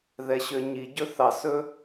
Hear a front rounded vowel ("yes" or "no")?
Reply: yes